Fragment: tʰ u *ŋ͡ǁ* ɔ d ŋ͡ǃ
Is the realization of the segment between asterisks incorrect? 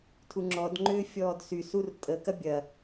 no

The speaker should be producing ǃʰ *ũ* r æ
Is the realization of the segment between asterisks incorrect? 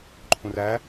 no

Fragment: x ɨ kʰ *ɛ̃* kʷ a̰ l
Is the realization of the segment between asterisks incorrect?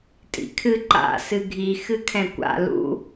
no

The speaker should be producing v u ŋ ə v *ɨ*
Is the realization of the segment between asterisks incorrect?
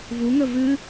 yes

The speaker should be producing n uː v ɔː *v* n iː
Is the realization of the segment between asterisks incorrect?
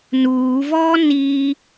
yes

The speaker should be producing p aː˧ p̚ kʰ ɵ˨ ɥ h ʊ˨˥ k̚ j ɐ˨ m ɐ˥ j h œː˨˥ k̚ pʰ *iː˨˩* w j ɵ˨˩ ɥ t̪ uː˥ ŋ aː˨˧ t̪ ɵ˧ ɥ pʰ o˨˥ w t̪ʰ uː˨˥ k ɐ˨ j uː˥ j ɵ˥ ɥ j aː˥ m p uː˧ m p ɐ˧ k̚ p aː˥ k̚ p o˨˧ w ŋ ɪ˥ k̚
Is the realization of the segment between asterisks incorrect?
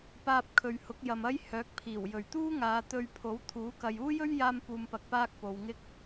no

